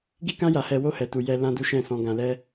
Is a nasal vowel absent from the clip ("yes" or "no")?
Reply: no